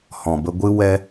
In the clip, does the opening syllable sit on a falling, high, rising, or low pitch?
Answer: low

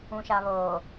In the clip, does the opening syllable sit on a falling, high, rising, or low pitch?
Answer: low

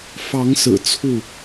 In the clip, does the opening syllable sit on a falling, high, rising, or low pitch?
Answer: rising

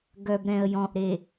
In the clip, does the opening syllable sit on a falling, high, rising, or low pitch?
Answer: low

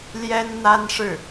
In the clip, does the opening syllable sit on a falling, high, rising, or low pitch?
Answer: high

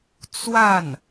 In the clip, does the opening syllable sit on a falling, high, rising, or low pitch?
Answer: falling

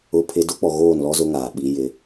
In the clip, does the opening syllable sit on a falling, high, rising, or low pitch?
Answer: high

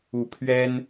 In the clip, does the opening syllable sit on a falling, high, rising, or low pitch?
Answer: rising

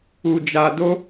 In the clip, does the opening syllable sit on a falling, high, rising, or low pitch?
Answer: low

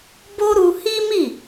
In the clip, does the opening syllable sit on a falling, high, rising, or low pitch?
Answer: high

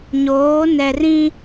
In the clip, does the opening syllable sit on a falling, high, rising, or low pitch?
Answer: rising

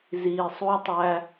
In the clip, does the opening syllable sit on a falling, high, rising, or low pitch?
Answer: low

